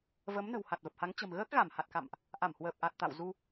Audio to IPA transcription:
v ə˨˦ m n ə̤˨˩ w h a˨˩ t̚ v ə˨˩ p̚ h a˨˦ ŋ t͡ɕ ə̤˨˩ m ɣ əː˦˥ k̚ ɣ a˧˩ m h a˨˩ t̚ k a̰˧˨ m ʔ | ʔ a˧˩ m h w əː˨˩ p̚ ʔ a˨˩ t̚ t̪ a̰˧˨ w z u˧

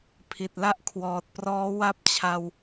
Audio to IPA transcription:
pʰ i˨˩ t̚ l a˥˩ ʔ kʰ w ɔː˨˩ t̚ p r ɔː˦˥ w a˥˩ p̚ t͡ɕʰ a˧ w

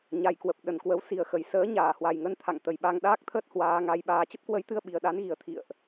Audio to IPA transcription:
ɲ a˨˩ j k w ə˨˩ p̚ ɗ ə˨˩ n k w ə˨˦ w s i˨˩ ə̯ x ə˨˩ j s əː˨˦ ɲ aː˧˩ h w a˨˩ j ŋ ə˧ n t̪ʰ a̰˧˨ ŋ t̪ ə˨˩ j ɓ a˧ ŋ ɗ aː˦˥ k̚ t̪ʰ əː˦˥ t̚ h w aː˨˦ ŋ a˨˦ j ɓ aː˨˦ t͡ɕ ə˦˥ p̚ k w ə˨˦ j t̪ ɨ˧ ə̯ ɓ i˨˩ ə̯ ɗ a˨˦ n ɣ i˨˩ ə̯ t̪ʰ ḭ˧˨ ə̯ ʔ

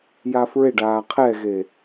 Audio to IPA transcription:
j a f ɹ e ɖ aː qʰ ɛ ɣ e

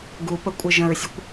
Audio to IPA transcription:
ɡ u p ə kʷʼ ɪ ʒ ə̃ ɹ sʲ ʊ kʷ

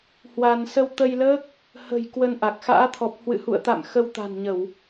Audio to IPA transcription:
h w aː˧ n s ə˧ w t̪ ə˧ j l əː˦˥ k̚ | h ə̤˨˩ j k w ə˧ n ʔ a˨˩ k̚ x a̰ː˧˥ t̪ʰ ɔ˨˩ p̚ h w ɨ̰˧˨ h ṵ˧˨ ə̯ t̪ a̰˧˨ m x ə˧ w t̪ a̤˨˩ n ɲ ə˧˩˨ w

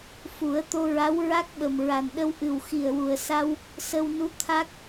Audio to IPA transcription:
f u˨˩˦ ə̯ t̪ o˧ ɹ a˧˥ w ɹ a˦˥ k̚ ɓ ə˨˩ m ɹ a˨˩ n ɗ ə˧ w ʔ ɨ˨˩ w x i˨˩ ə̯ w u˨˩ ə̯ s a˧ w | s ə˧ w n u˧˥ t̪ʰ a˦˥ k̚

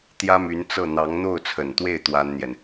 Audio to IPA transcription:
t̪ j ä˥ m y˧˥ n t͡s ɤ˥˩ n̪ ɑ˧˥ ŋ n̪ o˥˩ ʊ̯ t͡sʰ ə˨˩ n t̪ w e˥˩ ɪ̯ t̪ w a˥ n n̪ j ɛ˨ n

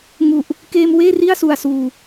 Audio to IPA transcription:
ŋ u˨˩ ʔ | k eː˧ m w eː˥˩ r i˥˩ a̯ s u˨˩ a̯ s uː˨˩

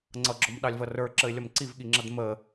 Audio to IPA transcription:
ŋ͡ǀ ʌ ɡ͡ǁ ɔ m ɗ ɑ lʲ v ʌ r ə˞ ǁ ə ɪ̯ lʲ ʌ m ǀ i v ɠ i ŋ͡ǁ ʌ d m ə

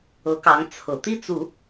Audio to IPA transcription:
ɤ˧˥ k ɑ˧˥ ŋ t͡sʰ ɤ˨˩ t̪ i˥˩ t͡s u˨˩˦

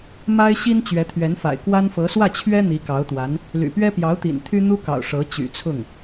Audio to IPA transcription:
m a˥ ɪ̯ ɕ i˥ n t͡ɕ ɥ ɛ˧˥ t̪ʰ ɥ ɛ˧˥ n f a̰˨˩ ɪ̯ k w a˥ n f ɤ˧˥ s w ä˥˩ t͡ɕʰ ɥ ɛ˥ n̪ i˧˥ k ɑ˧˥ ʊ̯ t̪ w a˧˥ n | l y̰˨˩ p ɥ ɛ˥ p j ɑ˧˥ ʊ̯ t̪ ḭ˨˩ n t̪ʰ y˥ n̪ u˥ k ɑ̰˨˩ ʊ̯ ʂ ɤ˧˥ t͡ɕ y̰˨˩ t͡sʰ ʊ˥˩ ŋ

